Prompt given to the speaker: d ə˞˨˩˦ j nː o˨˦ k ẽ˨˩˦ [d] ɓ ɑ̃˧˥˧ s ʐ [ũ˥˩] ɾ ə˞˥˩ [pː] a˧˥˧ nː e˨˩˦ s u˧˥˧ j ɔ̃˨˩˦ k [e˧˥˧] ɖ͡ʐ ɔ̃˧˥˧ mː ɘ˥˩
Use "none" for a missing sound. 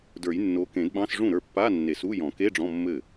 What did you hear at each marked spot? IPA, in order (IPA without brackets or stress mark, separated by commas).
d, ũ˥˩, pː, e˧˥˧